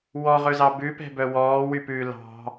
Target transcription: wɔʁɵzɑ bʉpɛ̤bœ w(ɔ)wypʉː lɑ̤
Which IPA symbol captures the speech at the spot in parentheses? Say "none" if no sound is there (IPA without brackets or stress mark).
ɔː